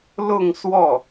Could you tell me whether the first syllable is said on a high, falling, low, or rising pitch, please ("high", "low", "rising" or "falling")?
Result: falling